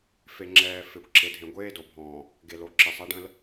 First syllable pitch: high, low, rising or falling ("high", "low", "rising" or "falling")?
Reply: low